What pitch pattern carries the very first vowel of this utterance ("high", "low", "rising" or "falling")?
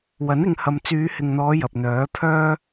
rising